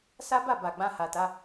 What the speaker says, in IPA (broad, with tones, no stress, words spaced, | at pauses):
sa˦ba˦˨ ba˨ ɡ͡bã˧ha˨ta˧